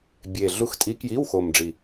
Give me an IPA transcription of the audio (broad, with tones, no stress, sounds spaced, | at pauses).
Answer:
bʲ e˨˩ ɮ u˧˥ x tʼ i˧˥ k j i˧˥˧ w x o˨˩ m ɖ͡ʐ i˨˩